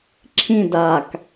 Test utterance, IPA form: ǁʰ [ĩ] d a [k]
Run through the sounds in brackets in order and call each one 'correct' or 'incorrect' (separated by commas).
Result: correct, correct